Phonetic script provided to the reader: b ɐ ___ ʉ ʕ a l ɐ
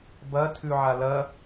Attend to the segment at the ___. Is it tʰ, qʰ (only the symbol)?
tʰ